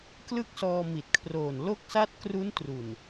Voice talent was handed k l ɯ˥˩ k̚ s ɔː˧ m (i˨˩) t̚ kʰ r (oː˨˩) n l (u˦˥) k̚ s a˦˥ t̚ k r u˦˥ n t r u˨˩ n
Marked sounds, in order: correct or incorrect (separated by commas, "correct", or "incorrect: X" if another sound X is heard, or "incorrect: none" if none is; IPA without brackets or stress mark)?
correct, correct, incorrect: o˦˥